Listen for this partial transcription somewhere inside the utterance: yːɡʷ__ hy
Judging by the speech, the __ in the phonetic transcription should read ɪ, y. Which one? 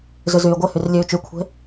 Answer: ɪ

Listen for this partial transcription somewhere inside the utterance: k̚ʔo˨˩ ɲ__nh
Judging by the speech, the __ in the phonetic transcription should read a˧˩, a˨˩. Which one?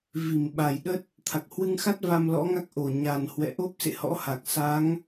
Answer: a˨˩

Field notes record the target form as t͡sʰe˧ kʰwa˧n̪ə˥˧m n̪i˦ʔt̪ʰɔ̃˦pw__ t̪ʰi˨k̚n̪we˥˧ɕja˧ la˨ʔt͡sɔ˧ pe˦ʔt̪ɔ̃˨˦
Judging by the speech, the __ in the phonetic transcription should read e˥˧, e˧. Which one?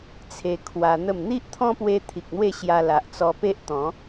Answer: e˧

